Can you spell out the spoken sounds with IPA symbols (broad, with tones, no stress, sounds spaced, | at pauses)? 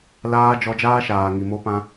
l aː˧ d͡ʒ ɔ˧ d͡ʒ aː˦ ʃ aː˨ ŋ i˨ m o˧ p ã˧